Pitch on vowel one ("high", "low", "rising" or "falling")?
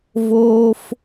high